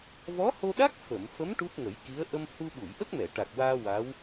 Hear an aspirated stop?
no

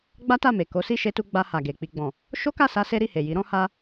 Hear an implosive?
no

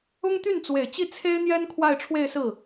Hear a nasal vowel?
no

